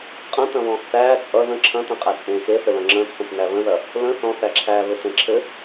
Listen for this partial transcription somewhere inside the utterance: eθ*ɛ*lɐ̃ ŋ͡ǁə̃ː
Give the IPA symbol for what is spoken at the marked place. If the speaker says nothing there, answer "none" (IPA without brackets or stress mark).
ɘ